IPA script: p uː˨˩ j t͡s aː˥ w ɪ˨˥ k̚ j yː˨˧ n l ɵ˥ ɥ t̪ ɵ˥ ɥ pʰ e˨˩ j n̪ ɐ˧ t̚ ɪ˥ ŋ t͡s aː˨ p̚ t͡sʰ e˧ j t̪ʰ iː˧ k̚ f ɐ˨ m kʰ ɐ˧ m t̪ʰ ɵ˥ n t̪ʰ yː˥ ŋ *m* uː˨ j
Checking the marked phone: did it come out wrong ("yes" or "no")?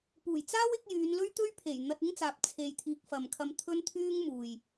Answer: no